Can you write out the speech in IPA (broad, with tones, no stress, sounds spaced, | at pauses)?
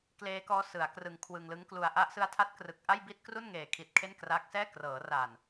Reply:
k l eː˦˥ k ɔː˦˥ s ɯ˩˦ a̯ k r ɯ˧ ŋ kʰ w ɯ˧ ŋ l ɯ˦˥ ŋ k l u˧ a̯ ʔ a˦˥ ʔ s ɯ˦˥ a̯ tʰ a˦˥ t̚ k r ɯ˨˩ k̚ ʔ a˥˩ j b i˥˩ t̚ k r u˥˩ n ŋ eː˨˩ kʰ i˨˩ t̚ kʰ e˥˩ n k r aː˦˥ k̚ s ɛː˥˩ k r ɤː˩˦ r a˨˩ n